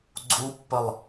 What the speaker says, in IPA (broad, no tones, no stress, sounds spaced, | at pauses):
ɡ͡ǀ u pː ə lˠ